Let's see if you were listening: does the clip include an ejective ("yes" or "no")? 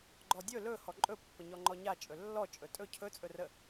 yes